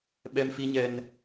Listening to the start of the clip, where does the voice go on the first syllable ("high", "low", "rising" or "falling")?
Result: high